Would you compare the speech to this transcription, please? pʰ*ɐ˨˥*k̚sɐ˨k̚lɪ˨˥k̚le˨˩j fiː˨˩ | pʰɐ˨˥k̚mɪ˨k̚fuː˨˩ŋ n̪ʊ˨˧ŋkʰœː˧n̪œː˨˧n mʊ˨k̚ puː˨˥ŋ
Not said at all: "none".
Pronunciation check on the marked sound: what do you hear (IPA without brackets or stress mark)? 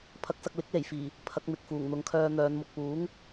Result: ɐ˨˥